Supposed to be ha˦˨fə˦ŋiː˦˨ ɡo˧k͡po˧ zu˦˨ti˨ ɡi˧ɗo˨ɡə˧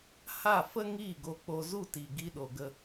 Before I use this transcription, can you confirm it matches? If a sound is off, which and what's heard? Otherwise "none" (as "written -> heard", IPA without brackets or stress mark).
none